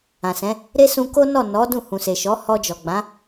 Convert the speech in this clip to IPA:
ã˨sɛ̃˨˦ | ɾe˦sũ˧ ko˦nɔ˦˨nɔ˨˦ dũ˦˨hũ˨se˨ʃɔ˨˦ hɔ˧d͡ʒɔ˨ɡ͡bã˨˦

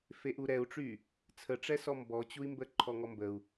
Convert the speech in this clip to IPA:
feʔuɾɛu̯ʈ͡ʂy | t͡sʰəʈ͡ʂɛsɔ mbɔt͡ɕui̯mbə ǃʰɔŋɔmbəu̯

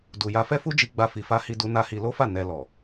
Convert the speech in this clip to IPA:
du˨ja˧fɛ˦ fu˦d͡ʒi˧ɡ͡ba˧ fi˧fa˦hi˦du˦ na˧hi˧lo˦fa˦˨ nɛ˧ lɔ˨

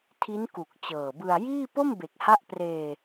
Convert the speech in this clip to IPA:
tʰi˦˥nku˨˩k̚ t͡ɕɤː˨˩bɯ˧a̯jiː˥˩ po˥˩mbe˨˩k̚ha˦˥ʔ preː˧

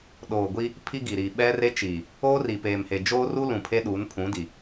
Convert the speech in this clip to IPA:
ɗoː˨ ɡʷi˦ | pʰi˦ɡi˨ɾiː˨ ɓɛ˦re˦t͡ʃiː˨ | oː˦ri˨ peː˨mhe˨ d͡ʒoː˦ru˦lũ˨ pʰe˦ɗu˨˦npʰũ˨˦di˨

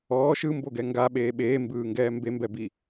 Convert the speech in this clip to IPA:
ɔː ʃɯmboɡɛ ŋɡaɓeː ɓeːmbɯːŋɡɛː mbembɛbi

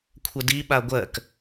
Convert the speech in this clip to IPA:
kʷʰədi ɓaɡʷɜk

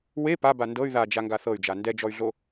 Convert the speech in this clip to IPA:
we paba ndɤy̯ ðad͡ʒaŋɡa θɤy̯d͡ʒa ndɛd͡ʒɔy̯ɮo

